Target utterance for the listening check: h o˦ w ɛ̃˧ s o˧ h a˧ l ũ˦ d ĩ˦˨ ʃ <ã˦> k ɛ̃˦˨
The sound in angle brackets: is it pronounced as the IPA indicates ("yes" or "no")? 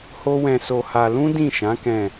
no